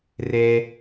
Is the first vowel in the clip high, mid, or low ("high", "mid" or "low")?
mid